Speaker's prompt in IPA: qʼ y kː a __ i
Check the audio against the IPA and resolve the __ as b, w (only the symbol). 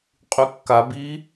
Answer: b